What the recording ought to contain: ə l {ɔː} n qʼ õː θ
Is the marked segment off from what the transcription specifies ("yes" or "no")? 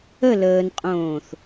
yes